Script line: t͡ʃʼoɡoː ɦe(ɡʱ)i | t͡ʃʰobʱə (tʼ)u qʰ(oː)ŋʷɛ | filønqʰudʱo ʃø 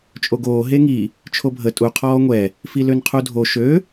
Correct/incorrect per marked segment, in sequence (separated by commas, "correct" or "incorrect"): incorrect, correct, incorrect